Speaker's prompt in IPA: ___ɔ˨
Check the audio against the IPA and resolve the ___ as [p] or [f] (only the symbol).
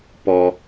p